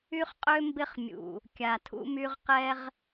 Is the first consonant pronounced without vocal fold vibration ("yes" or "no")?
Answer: yes